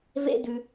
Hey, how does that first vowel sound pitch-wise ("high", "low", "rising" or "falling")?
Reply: high